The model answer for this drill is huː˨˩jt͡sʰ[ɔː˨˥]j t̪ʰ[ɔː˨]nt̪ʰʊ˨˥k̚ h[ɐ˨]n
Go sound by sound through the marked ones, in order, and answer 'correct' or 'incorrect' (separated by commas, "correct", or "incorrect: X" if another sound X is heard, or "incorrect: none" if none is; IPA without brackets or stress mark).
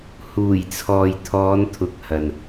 incorrect: ɔː˨, incorrect: ɔː˨˧, correct